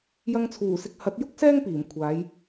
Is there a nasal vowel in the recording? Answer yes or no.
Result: no